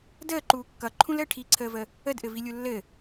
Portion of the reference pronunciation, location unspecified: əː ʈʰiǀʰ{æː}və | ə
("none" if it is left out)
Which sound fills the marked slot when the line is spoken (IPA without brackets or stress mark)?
əː